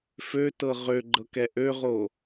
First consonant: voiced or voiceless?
voiceless